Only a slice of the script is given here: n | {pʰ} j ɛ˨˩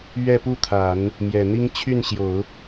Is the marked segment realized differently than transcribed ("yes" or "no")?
yes